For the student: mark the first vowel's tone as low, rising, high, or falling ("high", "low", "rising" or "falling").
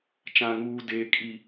high